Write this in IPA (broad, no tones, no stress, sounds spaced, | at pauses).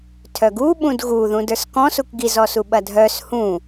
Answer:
tʰ œ ɡ u ɓ ũ d ɣ u ð ũ d ə˞ s k ɔ̃ s u k ɡ i z ɔ s u ɓ ɐ dʱ œ s h ũ